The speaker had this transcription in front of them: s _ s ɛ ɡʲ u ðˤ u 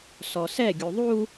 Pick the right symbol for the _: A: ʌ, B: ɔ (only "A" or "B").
B